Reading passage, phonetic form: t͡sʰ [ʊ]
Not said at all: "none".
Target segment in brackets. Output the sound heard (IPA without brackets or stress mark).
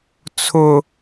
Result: ʊ